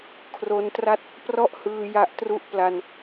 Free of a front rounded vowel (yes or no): yes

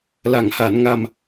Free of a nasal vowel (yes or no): yes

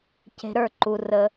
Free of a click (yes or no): no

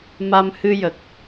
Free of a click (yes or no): yes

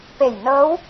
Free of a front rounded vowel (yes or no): yes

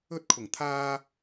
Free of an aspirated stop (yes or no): no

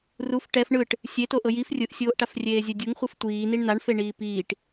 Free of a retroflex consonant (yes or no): no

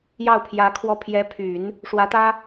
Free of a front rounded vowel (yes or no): no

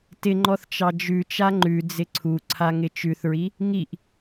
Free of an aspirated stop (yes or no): no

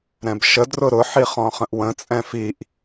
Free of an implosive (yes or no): yes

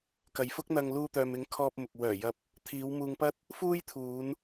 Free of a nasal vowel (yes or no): yes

